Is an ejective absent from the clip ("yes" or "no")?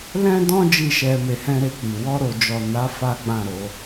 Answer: yes